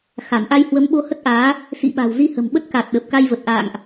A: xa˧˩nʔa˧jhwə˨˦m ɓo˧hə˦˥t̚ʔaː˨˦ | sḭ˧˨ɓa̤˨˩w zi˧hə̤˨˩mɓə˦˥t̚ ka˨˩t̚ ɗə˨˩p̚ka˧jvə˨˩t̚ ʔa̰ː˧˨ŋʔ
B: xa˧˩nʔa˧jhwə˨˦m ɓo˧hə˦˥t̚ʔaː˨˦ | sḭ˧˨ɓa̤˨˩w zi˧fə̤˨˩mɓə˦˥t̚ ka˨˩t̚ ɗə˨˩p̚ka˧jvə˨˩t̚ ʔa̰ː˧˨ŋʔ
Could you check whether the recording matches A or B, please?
A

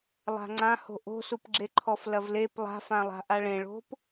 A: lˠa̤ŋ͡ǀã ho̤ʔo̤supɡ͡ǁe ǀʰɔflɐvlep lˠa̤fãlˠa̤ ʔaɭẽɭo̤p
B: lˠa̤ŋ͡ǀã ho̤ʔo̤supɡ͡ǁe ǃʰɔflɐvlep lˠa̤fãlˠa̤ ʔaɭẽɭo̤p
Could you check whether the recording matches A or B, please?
B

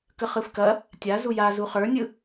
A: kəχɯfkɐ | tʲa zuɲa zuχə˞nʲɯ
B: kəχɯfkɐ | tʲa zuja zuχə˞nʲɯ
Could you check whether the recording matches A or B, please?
B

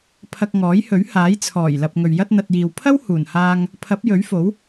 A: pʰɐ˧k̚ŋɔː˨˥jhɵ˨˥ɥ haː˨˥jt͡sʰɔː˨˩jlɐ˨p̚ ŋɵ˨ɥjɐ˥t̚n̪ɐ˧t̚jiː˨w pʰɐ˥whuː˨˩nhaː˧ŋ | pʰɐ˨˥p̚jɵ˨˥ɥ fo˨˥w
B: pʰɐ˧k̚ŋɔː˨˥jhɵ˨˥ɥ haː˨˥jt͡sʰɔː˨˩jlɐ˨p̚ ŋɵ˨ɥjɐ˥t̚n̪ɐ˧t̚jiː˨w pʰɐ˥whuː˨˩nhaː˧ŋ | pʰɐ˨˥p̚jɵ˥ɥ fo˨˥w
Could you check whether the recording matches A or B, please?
A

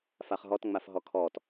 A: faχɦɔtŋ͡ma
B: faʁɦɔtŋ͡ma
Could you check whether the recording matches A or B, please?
A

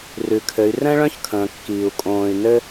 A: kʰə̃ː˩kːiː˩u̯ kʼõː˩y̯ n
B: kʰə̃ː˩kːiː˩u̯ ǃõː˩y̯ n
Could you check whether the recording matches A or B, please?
A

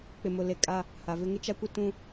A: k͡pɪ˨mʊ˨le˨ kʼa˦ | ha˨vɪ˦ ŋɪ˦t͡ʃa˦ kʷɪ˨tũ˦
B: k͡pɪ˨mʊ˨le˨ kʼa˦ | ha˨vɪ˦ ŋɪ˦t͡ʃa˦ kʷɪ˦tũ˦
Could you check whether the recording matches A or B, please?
B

